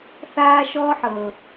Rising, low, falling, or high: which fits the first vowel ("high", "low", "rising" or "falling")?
high